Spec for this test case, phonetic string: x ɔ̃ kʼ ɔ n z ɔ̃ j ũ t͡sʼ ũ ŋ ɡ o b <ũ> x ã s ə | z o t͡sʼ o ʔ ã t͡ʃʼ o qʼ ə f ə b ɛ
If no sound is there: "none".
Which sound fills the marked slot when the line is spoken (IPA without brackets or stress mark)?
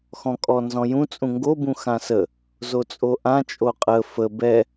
ũ